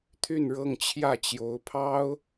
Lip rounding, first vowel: rounded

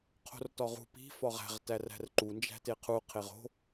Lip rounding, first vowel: rounded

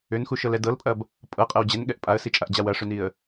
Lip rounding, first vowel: rounded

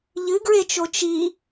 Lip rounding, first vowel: unrounded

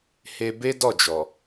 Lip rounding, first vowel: unrounded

